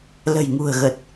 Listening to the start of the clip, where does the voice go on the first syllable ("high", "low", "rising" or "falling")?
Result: low